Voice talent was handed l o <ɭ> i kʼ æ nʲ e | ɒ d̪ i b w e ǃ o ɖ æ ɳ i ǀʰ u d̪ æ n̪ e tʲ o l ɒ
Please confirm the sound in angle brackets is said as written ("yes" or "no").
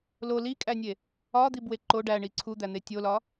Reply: no